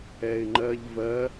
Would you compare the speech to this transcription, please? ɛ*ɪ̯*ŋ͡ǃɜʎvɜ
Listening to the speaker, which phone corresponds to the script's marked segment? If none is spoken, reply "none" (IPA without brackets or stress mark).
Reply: ɪ̯